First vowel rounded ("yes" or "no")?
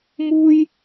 yes